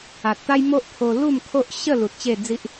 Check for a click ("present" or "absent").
absent